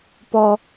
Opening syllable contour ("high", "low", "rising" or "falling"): high